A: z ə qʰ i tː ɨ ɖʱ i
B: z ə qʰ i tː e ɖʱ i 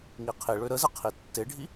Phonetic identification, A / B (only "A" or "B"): B